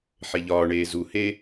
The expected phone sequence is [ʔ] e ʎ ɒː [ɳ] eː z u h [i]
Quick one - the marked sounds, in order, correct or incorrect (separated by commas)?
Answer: incorrect, correct, incorrect